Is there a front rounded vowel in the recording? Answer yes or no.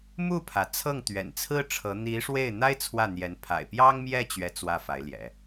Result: no